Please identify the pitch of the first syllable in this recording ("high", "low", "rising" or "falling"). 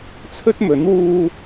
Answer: high